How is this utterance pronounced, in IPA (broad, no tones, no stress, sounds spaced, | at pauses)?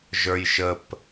ʒ ə˞ j ʃ ə p